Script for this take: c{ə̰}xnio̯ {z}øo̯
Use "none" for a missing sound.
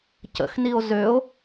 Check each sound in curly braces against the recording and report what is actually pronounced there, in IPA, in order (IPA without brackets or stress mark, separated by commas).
ə̰, z